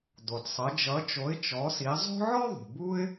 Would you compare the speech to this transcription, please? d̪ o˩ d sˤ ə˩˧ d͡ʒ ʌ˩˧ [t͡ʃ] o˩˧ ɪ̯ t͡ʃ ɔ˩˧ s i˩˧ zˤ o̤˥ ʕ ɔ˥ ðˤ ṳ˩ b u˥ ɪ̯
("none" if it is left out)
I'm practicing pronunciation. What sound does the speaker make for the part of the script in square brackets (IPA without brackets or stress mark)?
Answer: t͡ʃ